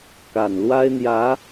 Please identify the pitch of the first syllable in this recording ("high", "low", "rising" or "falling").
low